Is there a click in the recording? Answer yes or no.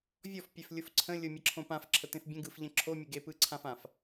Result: yes